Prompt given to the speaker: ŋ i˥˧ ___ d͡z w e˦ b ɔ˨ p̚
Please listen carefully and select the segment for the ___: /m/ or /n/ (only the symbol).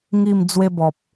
m